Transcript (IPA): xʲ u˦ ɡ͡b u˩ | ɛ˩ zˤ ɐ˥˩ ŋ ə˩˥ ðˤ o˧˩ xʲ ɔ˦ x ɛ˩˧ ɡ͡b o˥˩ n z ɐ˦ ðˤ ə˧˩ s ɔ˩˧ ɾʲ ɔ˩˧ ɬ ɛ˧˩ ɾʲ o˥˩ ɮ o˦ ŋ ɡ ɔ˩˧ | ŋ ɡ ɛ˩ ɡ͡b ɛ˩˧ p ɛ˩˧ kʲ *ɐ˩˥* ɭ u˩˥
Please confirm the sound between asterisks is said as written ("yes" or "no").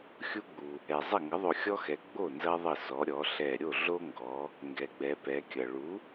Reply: no